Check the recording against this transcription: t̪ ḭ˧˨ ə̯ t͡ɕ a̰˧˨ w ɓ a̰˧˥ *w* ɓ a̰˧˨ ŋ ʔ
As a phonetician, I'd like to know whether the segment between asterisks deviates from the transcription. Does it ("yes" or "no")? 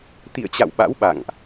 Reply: no